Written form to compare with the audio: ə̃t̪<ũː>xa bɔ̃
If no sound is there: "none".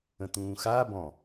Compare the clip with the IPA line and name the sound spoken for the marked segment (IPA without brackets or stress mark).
ũː